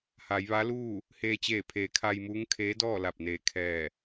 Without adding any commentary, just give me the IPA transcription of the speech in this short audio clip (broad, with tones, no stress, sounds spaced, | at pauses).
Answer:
h a˩˧ j ʋ a˧˥ l uː˥˨ | h eː˧ t͡ɕ eː˧˩ pʰ eː˩˧ kʰ a˧ j m uː˧˥ ŋ kʰ eː˧˥ d ɔː˥˨ l a˧˩ p̚ n eː˧˩ kʰ ɛː˧˩